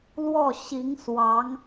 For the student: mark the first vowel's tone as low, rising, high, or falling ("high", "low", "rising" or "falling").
falling